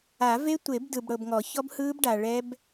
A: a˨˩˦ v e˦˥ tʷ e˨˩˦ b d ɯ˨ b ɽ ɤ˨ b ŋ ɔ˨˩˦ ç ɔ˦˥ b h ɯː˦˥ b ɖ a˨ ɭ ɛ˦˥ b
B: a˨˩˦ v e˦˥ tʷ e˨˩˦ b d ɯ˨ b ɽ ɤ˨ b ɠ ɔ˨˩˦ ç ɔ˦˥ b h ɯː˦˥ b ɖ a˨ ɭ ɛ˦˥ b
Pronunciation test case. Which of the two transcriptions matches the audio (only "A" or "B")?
A